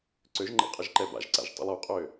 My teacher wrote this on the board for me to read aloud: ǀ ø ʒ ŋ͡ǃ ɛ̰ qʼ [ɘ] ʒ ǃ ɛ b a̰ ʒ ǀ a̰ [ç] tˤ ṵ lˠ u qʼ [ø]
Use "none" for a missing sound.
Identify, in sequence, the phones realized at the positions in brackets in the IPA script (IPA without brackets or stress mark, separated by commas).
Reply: ɘ, ʒ, ø